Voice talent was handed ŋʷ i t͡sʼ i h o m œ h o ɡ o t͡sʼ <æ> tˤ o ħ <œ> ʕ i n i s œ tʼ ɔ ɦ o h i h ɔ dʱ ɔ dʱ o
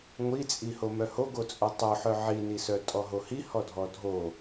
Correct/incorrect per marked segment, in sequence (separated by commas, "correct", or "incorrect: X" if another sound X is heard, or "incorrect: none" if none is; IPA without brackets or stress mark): incorrect: œ, correct